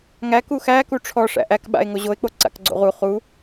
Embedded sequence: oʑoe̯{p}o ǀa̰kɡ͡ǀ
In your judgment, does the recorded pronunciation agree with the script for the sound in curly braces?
no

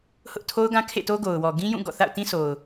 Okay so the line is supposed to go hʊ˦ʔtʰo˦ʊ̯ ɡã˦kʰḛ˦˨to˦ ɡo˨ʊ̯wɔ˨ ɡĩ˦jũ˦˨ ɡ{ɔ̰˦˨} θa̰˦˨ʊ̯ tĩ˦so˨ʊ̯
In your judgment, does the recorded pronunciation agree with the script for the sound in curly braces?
yes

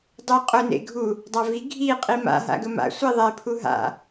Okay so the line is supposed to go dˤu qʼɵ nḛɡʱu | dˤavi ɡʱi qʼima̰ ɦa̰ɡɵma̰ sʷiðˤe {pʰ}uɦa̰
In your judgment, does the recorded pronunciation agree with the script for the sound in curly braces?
yes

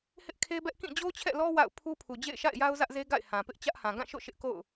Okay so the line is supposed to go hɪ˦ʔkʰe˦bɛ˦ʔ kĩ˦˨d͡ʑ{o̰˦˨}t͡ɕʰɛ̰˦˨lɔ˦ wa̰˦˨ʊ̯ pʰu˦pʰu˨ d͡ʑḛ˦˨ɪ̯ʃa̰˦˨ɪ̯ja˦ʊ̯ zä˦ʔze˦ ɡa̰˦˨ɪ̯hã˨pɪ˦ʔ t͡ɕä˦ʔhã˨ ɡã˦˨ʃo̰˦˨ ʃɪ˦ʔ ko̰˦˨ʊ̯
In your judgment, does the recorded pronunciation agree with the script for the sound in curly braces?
no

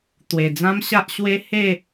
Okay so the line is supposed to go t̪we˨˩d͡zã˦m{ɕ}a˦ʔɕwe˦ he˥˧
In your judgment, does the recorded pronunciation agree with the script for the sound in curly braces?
yes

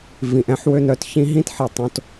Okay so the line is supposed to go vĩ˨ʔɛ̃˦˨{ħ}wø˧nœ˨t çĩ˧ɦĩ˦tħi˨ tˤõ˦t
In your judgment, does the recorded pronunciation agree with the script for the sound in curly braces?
yes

